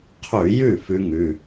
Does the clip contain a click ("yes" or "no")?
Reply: no